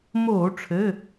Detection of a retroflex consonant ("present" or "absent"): present